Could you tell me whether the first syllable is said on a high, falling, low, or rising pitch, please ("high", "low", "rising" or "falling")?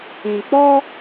low